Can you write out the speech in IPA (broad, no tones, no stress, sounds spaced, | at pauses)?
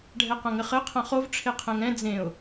ɖʱ ɛ q ɐ̃ ŋ ɘ χ ɘ qʰ ɐ̃ χ o v ʈ͡ʂʰ e qʰ ɛ̃ ŋ ɛ̃ d͡z ẽ ʊ̯